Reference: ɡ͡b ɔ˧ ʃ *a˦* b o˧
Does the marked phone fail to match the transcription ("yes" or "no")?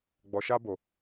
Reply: no